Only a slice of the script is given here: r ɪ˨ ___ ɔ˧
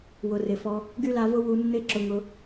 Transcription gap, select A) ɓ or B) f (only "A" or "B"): B